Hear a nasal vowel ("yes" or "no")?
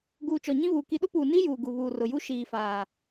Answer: yes